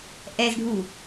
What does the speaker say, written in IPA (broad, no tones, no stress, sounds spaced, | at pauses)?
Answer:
ʔ ɛ z ɖʱ u